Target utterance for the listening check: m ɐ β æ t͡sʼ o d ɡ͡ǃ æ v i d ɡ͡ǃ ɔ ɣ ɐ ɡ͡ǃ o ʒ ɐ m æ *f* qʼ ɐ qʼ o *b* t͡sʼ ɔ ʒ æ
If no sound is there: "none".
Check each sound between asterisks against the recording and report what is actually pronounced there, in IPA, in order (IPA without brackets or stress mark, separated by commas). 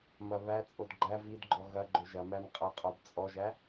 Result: m, b